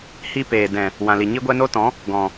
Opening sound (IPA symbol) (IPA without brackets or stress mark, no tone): h